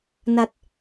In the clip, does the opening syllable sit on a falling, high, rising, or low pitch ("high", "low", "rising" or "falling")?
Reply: low